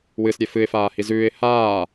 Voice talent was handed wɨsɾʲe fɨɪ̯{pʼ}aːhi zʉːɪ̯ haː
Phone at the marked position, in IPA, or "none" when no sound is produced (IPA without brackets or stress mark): f